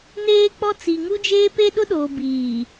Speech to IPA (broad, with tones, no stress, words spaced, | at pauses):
neː˦k͡pɔ˦ t͡si˨ ŋu˦d͡ʒeː˦ pe˦ ɗʊ˦ɗoː˨biː˨